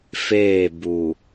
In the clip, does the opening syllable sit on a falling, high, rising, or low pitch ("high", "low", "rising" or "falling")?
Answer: falling